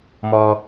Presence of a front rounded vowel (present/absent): absent